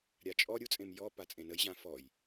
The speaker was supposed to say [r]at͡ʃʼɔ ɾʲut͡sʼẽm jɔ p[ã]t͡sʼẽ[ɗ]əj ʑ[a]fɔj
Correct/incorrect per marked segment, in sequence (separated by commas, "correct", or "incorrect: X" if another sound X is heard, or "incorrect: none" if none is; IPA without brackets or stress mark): incorrect: ɾʲ, incorrect: a, incorrect: n, incorrect: ã